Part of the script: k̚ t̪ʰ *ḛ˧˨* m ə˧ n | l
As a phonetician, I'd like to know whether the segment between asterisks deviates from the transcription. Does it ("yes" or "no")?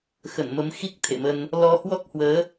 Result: no